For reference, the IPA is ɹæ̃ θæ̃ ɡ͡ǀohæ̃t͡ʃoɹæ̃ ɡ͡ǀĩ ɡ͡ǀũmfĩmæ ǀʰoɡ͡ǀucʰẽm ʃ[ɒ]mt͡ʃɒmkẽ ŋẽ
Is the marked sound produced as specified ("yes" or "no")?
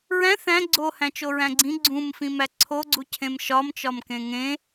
yes